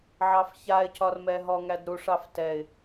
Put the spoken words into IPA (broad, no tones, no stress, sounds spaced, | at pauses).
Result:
ʕ ɑ f ç a ɪ̯ c ɒ r m ɛ ɦ ɔ ŋ æ d ɾ u ʂ ɑ f t ɛ ɪ̯